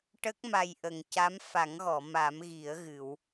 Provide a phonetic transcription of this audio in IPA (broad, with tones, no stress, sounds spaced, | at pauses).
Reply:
ʈ ə˦˥ k̚ m a˨˩ j ʔ ə˨˩˨ ŋ c a˧˥ m f a˨˩˦ ŋ ɣ ɔ˨˩˨ m a˨˩˦ m ɣ i˨˩˦ ə̯ ɣ ɨ˨˩˨ w